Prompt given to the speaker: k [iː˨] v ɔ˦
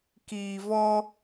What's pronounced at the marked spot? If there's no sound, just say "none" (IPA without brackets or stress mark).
iː˨